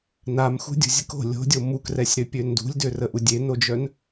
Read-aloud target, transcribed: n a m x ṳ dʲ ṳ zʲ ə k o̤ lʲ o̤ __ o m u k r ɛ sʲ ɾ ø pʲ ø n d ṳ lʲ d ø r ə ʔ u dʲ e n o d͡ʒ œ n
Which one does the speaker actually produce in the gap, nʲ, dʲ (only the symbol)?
dʲ